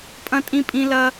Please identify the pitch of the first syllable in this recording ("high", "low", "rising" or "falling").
high